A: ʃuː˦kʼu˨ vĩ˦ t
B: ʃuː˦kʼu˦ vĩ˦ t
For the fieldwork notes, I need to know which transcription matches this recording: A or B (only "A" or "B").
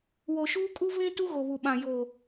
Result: B